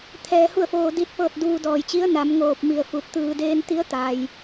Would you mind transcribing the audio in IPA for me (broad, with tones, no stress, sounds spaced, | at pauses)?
t̪ʰ ɛː˧ h u˥˨ ə̯ f oː˧ d i˧ t̚ p ɤː˥˨ t̚ d uː˧ d ɔː˧˩ j t͡ɕ i˧˥ ə̯ n a˩˧ m ŋ oː˧˩ p̚ m i˧˩ ə̯ f u˧˩ t̚ t̪ ɯː˧ d eː˧ n t̪ i˧˥ ə̯ t̪ a˩ j